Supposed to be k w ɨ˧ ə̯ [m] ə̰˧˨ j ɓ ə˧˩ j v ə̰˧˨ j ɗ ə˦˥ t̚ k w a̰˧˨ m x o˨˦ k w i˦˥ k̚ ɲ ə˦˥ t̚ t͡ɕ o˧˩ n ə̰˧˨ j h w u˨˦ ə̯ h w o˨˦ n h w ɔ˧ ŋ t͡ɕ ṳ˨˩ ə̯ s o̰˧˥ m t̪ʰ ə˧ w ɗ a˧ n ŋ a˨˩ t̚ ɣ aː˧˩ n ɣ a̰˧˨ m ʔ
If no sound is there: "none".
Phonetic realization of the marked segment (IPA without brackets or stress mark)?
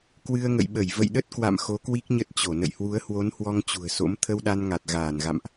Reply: ŋ